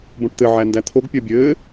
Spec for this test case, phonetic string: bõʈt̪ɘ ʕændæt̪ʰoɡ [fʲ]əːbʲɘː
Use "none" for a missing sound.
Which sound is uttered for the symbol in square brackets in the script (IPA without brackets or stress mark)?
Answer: pʲ